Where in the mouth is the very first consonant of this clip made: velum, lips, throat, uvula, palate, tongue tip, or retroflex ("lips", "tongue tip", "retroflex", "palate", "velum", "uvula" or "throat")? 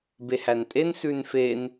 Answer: lips